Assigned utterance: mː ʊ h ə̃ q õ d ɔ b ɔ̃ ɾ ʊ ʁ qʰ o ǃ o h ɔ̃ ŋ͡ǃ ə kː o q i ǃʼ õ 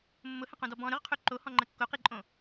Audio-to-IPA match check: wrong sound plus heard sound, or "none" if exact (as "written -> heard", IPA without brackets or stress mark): none